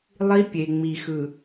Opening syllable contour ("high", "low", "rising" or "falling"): high